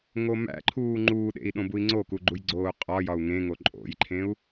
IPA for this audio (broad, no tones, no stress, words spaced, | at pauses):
ŋomæ̰ǃʰuː ŋ͡ǃuːɗḛi̯ ɗõbui̯ŋ͡ǀoku ɡ͡ǃujɡ͡ǀoːu̯qʼɒjɒu̯ ŋẽŋo ǃʼo̰jǃʰẽu̯